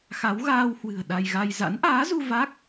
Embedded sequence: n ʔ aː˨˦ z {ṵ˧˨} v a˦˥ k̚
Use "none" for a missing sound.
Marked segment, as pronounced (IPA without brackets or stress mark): u˧